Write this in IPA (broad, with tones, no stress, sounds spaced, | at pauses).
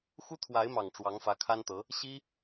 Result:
x u˥ t̪ʰ w a˧˥ ɪ̯ m ɑ˨˩ ŋ ʈ͡ʂ w ɑ˧˥ ŋ f ä˧˥ kʰ a˥ n t̪ ɤ˧˥ | ɕ i˥